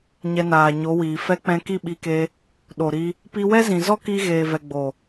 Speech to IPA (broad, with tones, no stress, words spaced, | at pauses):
ɲɛ˧naː˨ ɲo˨˦wiː˨ fɛ˧k͡pɛ̃˧ ki˦˨ɓi˧ke˧ | ɗo˨ɾi˧ | pi˧wɛ˦zĩ˨ zɔ˦ki˧ ɣeː˨vɛ˨ ɡ͡bo˨